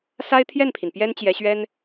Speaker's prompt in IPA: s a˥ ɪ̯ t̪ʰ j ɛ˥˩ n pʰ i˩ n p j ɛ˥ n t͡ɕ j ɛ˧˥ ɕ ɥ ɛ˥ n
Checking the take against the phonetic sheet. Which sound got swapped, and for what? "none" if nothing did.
none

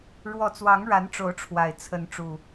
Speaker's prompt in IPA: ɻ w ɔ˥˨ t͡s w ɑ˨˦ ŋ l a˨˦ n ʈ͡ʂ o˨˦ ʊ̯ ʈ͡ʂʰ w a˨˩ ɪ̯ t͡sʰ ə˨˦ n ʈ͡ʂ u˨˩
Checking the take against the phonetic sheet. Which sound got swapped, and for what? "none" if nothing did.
l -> ɻ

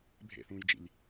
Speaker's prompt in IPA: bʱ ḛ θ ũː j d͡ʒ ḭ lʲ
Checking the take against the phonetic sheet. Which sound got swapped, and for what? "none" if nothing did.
none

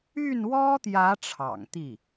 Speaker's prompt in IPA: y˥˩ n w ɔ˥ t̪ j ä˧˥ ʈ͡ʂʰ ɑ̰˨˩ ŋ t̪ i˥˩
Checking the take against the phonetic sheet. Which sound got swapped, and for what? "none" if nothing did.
none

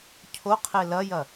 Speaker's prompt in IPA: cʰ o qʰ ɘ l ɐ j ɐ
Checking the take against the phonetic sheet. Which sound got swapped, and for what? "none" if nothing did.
ɘ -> e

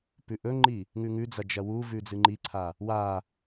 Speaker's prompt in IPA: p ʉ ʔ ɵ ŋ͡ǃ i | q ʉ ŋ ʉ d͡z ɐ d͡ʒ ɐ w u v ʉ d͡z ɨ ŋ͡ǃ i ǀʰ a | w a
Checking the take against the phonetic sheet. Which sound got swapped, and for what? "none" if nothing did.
q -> ŋ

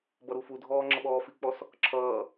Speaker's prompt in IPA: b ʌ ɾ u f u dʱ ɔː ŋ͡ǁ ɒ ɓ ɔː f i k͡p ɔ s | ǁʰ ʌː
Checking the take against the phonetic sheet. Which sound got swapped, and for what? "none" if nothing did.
ɒ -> ʌ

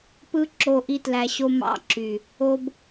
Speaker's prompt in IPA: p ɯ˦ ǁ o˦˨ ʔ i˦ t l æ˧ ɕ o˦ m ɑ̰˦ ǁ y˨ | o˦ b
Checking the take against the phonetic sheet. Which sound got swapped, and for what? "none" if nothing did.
none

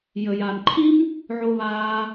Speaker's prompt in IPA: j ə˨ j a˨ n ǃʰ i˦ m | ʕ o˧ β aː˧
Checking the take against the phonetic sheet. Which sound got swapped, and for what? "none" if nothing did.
none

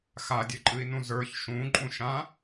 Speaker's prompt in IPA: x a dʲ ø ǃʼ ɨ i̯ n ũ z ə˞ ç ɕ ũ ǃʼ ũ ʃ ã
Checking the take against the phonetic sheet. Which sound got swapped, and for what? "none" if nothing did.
ɕ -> ʃ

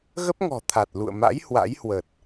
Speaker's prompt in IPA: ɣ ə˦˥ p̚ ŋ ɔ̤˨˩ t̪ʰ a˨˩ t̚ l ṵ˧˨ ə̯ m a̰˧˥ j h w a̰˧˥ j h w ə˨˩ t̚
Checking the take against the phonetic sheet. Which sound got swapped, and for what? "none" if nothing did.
none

